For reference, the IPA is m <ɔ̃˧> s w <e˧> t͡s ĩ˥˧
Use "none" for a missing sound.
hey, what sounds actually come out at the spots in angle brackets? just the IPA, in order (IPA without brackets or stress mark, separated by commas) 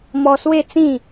ɔ˧, e˥˧